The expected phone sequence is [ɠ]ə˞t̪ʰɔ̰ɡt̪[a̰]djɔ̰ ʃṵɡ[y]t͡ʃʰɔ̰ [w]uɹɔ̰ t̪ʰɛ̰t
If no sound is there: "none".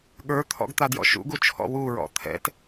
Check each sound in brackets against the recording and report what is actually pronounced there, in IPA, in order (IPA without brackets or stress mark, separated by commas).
ɠ, a, u, w